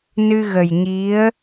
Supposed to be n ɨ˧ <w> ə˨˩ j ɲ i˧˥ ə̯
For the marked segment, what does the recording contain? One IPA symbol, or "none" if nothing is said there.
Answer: ɣ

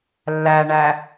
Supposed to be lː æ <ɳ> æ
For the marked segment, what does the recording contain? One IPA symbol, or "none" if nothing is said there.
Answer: ɳ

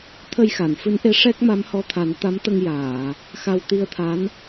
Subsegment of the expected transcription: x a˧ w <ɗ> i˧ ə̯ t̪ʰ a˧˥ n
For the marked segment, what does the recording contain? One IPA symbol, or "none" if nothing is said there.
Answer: t̪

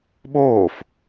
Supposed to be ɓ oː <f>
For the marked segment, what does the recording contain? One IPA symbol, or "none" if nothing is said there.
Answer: f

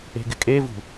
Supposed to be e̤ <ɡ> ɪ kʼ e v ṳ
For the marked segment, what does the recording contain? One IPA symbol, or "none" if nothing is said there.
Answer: ɡ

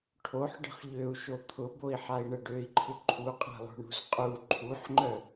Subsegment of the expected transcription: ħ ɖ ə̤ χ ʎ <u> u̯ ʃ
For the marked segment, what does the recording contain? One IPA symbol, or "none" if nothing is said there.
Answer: ø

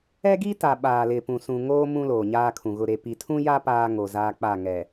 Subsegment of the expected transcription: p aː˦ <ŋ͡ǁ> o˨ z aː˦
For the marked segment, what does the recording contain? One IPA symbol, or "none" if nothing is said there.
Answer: ŋ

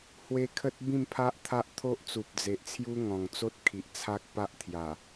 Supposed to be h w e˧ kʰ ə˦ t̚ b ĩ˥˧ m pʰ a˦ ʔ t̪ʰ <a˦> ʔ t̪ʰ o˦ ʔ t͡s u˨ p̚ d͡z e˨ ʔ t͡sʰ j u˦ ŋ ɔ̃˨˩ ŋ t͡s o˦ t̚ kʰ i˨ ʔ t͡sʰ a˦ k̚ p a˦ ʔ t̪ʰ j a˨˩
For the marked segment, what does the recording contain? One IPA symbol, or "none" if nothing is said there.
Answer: a˦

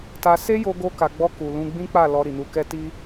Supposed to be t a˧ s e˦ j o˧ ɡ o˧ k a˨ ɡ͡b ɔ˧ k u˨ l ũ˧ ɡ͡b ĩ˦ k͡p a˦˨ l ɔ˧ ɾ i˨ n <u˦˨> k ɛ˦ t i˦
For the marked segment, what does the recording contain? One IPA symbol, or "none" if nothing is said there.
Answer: u˧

